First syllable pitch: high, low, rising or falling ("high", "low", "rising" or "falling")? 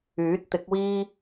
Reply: rising